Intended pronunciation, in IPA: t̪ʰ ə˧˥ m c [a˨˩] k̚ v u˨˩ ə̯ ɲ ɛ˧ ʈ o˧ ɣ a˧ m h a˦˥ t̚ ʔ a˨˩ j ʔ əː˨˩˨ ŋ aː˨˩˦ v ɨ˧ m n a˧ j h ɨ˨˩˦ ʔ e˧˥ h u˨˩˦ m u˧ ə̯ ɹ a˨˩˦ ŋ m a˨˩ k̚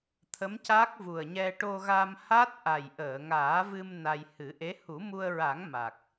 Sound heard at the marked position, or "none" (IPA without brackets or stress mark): a˦˥